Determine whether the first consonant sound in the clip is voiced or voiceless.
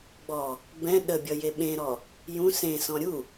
voiced